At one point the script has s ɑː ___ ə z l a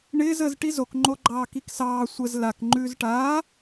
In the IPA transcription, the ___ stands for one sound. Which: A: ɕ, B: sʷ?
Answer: B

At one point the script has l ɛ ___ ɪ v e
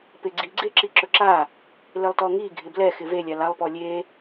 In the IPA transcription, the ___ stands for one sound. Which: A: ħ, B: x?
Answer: B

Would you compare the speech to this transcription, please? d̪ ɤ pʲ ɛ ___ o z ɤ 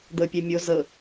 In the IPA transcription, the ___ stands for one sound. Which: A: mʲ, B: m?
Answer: A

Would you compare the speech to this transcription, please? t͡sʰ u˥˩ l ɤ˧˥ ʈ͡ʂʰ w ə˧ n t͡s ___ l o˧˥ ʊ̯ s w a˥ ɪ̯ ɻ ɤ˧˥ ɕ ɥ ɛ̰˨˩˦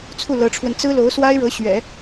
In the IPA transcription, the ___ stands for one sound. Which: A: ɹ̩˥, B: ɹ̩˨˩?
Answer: A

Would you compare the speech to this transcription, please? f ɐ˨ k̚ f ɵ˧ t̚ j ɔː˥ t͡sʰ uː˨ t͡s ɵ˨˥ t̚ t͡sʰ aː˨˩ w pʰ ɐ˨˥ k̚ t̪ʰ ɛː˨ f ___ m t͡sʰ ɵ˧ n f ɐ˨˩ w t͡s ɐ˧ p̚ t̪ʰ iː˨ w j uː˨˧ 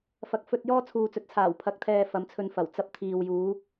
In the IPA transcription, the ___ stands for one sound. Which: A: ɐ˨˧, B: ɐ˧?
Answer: A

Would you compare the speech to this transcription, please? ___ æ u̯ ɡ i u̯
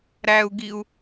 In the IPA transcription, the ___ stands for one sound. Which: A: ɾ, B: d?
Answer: A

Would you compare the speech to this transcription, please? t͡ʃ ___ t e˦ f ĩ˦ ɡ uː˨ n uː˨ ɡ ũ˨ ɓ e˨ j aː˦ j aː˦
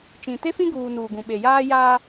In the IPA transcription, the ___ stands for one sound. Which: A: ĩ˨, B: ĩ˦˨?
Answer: A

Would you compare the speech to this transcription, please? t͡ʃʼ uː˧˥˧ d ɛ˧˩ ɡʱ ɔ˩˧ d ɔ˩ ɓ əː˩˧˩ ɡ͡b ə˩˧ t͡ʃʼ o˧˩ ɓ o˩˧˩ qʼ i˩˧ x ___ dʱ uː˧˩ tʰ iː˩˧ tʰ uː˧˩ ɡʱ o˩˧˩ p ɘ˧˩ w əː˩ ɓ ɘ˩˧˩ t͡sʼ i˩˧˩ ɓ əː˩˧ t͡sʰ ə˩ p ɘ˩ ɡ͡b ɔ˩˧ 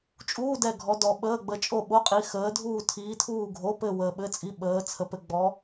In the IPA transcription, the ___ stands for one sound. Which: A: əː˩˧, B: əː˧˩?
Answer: A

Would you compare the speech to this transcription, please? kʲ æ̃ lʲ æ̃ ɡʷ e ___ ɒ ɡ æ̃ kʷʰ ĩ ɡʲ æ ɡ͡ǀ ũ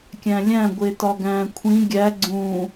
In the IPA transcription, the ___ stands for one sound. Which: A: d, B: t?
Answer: B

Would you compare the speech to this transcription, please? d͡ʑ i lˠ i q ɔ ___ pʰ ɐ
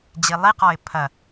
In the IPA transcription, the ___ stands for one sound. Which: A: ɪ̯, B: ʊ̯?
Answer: A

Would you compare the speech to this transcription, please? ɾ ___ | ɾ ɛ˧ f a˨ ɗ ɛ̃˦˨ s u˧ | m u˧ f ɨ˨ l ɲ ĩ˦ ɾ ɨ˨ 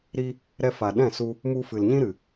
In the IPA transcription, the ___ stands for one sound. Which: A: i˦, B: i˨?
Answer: A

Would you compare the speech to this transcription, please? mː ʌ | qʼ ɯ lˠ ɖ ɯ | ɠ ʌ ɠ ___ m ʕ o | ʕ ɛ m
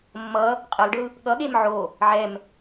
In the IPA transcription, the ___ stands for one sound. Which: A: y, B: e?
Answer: B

